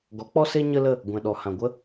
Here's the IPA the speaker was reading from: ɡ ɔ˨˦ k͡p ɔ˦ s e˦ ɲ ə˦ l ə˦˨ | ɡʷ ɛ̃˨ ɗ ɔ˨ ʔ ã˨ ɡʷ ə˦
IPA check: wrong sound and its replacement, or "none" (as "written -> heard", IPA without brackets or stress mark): ʔ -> h